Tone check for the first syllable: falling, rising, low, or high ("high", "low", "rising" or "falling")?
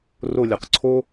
falling